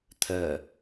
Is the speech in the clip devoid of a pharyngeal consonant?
yes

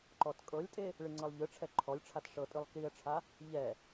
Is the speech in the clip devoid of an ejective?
no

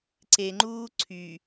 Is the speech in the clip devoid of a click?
no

